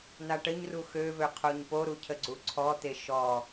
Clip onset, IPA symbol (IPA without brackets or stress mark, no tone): n̪